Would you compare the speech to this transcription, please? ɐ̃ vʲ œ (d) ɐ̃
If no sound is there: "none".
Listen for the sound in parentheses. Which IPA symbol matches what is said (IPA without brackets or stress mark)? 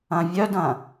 d